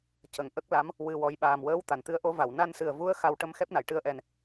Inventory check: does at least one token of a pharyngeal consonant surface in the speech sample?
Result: no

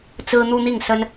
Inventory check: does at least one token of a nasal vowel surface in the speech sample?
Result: no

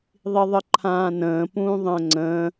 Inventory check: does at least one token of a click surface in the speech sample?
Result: yes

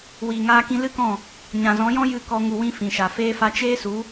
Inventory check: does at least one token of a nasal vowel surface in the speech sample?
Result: yes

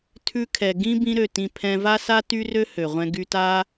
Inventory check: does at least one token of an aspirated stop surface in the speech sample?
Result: yes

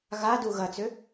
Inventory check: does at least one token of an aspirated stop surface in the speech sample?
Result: no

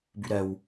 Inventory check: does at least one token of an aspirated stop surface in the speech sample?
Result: no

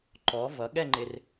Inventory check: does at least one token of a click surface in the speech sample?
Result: yes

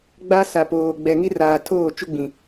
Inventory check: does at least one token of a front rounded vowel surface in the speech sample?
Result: no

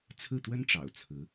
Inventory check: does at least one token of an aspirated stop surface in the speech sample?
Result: yes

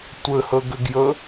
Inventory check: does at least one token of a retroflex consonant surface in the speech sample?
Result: no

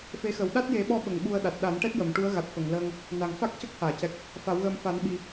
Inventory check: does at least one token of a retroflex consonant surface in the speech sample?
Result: yes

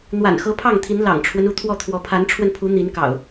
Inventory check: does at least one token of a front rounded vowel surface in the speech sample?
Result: no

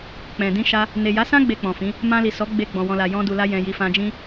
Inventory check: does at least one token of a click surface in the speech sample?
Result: no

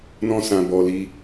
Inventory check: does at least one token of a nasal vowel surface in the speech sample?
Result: yes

